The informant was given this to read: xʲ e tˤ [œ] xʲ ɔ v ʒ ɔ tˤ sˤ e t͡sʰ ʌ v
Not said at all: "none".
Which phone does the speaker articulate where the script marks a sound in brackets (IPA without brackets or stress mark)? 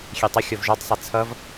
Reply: ə